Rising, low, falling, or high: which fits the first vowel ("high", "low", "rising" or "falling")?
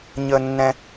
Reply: high